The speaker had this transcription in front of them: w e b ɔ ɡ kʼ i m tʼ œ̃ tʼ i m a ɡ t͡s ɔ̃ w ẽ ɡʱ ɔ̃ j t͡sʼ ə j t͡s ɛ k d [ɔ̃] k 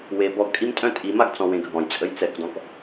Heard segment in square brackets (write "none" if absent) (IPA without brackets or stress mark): ɔ̃